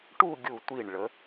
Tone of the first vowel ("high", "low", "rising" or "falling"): falling